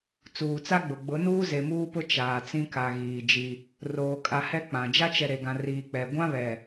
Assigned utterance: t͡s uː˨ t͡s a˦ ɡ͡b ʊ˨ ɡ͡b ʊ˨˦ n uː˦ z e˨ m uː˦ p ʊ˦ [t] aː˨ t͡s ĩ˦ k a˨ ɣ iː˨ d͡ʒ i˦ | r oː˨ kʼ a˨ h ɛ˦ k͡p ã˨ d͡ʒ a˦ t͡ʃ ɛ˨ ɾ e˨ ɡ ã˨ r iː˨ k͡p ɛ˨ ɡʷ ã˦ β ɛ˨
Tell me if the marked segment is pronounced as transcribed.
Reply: no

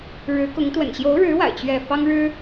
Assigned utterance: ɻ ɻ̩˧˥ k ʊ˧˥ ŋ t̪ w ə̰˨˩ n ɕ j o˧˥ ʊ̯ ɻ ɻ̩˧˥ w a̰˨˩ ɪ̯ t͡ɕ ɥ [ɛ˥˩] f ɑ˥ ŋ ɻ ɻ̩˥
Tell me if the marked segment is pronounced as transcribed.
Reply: yes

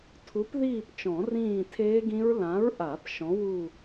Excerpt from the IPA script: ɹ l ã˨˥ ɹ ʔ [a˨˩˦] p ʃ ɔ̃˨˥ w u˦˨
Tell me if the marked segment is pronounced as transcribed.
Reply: yes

